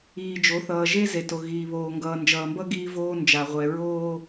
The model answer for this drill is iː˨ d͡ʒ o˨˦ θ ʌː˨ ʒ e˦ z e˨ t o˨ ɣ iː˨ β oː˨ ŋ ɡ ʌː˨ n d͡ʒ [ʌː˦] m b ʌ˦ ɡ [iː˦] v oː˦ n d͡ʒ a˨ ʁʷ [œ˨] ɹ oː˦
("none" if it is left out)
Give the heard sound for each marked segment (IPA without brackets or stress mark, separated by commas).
ʌː˨, iː˦, ɛ˨